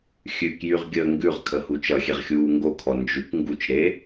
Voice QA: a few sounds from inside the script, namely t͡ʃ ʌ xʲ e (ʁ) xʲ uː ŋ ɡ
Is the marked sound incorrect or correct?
correct